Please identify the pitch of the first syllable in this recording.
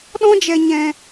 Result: high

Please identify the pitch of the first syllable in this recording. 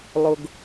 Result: low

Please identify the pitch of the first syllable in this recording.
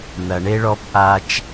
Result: low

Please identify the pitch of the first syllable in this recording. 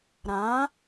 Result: rising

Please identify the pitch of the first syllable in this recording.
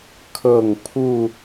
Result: falling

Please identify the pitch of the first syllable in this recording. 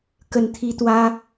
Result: low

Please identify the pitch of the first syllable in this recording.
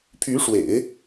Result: rising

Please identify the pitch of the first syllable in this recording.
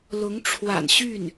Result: rising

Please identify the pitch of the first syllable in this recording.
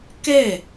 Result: falling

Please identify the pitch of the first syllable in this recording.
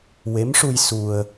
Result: rising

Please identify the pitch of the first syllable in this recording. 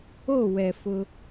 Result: falling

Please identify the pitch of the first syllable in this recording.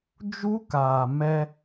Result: high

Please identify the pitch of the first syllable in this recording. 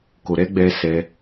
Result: low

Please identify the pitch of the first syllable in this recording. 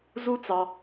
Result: high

